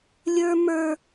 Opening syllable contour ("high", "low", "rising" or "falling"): high